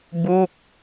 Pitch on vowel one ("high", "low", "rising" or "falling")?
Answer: falling